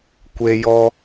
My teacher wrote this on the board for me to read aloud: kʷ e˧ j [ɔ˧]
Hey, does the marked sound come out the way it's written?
yes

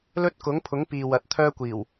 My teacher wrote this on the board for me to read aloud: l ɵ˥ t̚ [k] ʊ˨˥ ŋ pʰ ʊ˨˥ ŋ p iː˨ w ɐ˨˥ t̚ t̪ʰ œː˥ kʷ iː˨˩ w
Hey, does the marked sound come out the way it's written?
yes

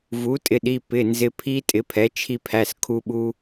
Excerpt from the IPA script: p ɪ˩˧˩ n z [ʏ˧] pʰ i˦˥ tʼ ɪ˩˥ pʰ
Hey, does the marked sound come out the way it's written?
no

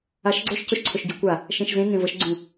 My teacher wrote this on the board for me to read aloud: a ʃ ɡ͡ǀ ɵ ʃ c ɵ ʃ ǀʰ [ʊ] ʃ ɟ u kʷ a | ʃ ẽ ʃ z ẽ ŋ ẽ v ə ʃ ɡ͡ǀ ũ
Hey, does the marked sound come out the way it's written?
no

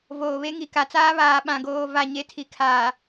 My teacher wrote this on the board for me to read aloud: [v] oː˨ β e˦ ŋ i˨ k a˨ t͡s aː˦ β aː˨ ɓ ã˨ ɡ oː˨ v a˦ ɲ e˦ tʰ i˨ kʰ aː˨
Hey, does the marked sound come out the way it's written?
yes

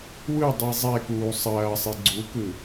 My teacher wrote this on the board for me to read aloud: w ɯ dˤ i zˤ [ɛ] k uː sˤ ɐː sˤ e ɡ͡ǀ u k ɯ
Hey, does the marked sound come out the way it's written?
yes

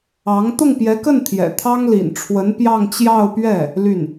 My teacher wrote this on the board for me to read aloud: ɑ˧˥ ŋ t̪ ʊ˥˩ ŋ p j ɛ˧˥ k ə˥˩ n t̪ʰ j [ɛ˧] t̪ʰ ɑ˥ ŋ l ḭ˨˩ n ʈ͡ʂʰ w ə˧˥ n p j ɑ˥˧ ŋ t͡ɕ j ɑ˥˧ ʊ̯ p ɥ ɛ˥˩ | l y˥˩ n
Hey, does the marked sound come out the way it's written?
no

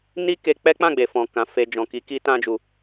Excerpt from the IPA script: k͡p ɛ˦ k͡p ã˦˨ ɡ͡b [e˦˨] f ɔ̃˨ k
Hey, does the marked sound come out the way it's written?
no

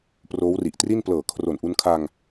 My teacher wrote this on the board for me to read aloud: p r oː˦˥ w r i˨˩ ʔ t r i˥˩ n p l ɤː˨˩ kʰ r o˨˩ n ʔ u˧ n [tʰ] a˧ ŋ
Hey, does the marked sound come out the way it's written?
no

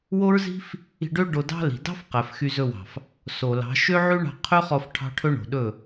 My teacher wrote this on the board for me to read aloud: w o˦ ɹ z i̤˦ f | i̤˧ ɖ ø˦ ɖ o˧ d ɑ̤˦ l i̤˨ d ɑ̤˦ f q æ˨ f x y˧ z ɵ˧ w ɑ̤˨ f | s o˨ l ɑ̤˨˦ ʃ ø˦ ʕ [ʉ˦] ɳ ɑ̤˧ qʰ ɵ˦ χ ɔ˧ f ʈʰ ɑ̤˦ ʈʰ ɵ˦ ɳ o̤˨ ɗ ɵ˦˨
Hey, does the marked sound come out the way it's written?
yes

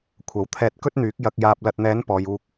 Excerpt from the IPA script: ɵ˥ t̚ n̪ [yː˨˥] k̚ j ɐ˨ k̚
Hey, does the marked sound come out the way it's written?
yes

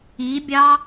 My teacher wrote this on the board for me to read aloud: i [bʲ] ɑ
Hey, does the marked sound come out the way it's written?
yes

